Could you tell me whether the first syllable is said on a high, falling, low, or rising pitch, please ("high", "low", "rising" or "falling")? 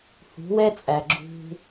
rising